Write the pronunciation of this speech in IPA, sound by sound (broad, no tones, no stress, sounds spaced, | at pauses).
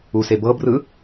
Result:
u s e b ɤ b r ɯ